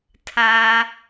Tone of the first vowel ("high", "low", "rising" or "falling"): high